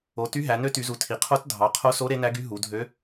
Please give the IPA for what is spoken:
o˩˧ty˧˥ɦæ˩˧ nø˧˥ty˩˧zu˩˧ tʰi˩˧qʰo˧˥t dʱɑ˩˧qʰo˧˥so˧˥ ɾe˧˥næ˧˥ɡy˧˥ ɦu˩˧dʱø˧˥

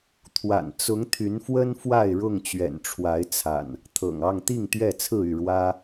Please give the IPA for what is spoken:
t̪ʰwa̰˨˩nt͡sʊ˨˦ŋ t̪ʰy˨˦nfwə˦n fwa˥˨ɪ̯ɻʊ˥˨ŋ t͡ɕɥɛ̰˨˩nʈ͡ʂʰwa˨˦ɪ̯t͡sʰa̰˨˩n | t̪ʰɤ̰˨˩ŋɑ˥˨ŋt̪i˥˨ŋ t̪ɥɛ˥˨t͡sʰɹ̩˥˨y˥˨ɻwä˦

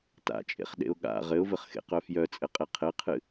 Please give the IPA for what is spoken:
ta̰t͡ʃʼḛχɗḛʊ̯ ɠa̰ ʁɘʊ̯vɘχxḛqœ fjœt͡sʼɘqʼe qʰɘqʰɨ

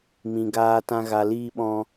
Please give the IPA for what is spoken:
mĩ˨ɡaː˧tã˧ ɣa˨liː˧ɓɔ̃˧

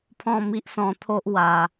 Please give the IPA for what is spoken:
pʰɔ̃˥˧ mi˦ʔsɔ̃˧t̪ʰo˦ʔ wa˧

